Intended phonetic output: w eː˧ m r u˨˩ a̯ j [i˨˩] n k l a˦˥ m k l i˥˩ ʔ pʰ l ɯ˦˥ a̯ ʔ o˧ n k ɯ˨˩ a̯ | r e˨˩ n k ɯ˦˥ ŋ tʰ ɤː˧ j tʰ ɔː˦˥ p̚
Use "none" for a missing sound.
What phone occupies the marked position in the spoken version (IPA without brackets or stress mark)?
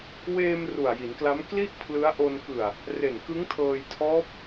i˩˦